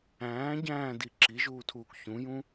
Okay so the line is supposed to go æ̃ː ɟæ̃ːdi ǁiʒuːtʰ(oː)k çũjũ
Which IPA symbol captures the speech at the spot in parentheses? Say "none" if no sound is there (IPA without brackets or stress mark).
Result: uː